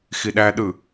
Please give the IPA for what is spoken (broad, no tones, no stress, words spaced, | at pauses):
xiɗæɗɯ